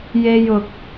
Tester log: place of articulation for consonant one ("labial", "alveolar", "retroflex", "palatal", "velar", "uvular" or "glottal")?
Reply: palatal